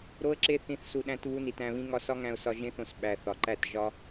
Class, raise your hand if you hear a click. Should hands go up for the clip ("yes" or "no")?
yes